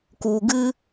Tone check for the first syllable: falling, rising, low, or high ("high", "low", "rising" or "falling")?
low